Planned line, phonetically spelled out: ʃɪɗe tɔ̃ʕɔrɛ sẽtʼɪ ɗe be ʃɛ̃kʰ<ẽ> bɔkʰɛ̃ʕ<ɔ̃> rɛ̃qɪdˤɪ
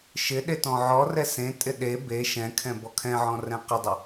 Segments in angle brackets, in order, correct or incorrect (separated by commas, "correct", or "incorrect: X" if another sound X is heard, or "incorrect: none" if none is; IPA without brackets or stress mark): incorrect: ɛ̃, correct